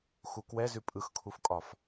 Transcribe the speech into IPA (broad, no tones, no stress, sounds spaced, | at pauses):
x u k w ɛ z ʉ pʼ ɯ x kʰ u f kʼ ɒ f